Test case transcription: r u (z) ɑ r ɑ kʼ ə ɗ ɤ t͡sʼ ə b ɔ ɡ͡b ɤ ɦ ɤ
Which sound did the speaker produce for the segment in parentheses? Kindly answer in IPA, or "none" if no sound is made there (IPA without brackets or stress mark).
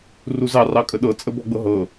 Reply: z